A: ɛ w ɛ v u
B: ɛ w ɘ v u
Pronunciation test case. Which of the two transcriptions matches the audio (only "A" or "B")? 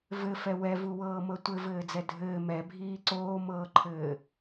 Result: A